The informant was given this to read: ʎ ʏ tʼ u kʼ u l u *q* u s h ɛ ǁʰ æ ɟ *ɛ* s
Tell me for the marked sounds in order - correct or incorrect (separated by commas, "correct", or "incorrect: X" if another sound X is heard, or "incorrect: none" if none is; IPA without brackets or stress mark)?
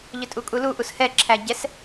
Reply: incorrect: ʔ, correct